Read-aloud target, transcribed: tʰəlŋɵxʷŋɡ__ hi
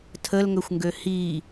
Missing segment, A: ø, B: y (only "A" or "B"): A